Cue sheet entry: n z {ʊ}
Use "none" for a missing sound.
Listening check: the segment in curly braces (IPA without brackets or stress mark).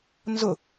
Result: ʊ